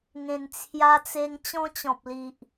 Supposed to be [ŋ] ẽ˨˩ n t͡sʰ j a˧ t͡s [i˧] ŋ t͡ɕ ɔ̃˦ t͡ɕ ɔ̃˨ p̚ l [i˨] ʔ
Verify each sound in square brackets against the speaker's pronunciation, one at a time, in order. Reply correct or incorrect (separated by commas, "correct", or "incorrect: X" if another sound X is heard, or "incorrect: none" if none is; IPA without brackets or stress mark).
correct, incorrect: e˧, correct